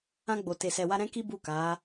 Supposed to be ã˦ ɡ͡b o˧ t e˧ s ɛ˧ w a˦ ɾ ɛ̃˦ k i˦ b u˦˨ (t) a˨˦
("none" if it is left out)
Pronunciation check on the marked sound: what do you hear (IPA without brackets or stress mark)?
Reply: k